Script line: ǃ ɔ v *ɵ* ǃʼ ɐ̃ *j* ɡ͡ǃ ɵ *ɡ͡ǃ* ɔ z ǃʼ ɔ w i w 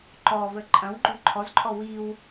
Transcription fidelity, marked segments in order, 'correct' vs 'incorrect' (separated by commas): incorrect, incorrect, incorrect